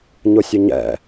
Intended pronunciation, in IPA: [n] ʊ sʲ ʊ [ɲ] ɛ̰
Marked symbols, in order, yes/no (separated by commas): no, yes